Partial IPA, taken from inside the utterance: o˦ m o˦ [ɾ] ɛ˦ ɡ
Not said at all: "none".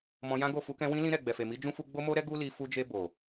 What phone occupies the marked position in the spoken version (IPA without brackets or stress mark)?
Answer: ɾ